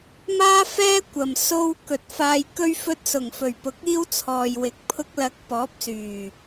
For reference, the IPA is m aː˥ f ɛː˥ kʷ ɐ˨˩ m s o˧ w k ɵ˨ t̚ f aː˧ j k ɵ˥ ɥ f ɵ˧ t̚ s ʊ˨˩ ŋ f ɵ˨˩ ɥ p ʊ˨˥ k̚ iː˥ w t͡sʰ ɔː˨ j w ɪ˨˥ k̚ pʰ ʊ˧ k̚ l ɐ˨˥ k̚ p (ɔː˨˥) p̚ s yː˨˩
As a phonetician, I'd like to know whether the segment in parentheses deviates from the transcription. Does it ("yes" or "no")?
no